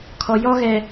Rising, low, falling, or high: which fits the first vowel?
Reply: low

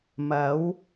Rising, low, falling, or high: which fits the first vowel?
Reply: rising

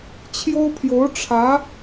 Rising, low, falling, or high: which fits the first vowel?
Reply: high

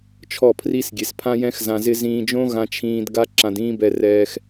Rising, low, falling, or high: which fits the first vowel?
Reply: falling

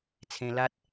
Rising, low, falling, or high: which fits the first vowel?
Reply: high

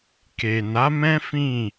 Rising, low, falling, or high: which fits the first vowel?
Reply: low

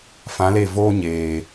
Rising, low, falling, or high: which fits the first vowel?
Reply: rising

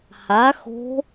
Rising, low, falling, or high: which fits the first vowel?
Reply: rising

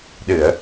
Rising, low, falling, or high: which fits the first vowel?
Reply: low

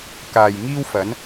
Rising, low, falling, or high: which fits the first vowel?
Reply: low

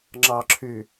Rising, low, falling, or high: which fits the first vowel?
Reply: low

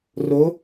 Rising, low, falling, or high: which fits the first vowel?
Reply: rising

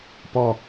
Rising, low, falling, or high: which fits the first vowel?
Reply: low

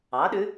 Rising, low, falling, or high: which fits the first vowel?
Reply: rising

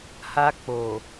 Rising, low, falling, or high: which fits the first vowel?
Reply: high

